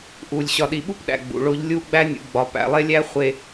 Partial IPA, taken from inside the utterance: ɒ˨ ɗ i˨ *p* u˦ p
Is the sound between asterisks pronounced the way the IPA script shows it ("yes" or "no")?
no